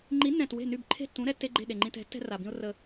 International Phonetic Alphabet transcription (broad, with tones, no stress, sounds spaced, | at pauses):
ŋ͡ǃ i˨˥ nː ɛ̃˨˩ t w e̤˥˩ n y˥˩ b ǃʰ e̤˥˩ tː ũ˨˥ ɾ ɛ˨˥ tː e˧˥˧ ɡ͡ǃ e̤˥˩ ɗ e˨˩ ŋ͡ǃ ĩ˧ t ɛ̤˨˥ tː ɛ̤˥ r a˨˩ b ĩ˥ ʊ̯ r ə˧